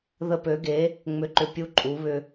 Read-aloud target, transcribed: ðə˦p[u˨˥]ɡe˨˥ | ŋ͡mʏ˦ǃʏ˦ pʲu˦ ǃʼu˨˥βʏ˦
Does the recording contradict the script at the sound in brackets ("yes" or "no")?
yes